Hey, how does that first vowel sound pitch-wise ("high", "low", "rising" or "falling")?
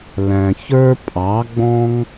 low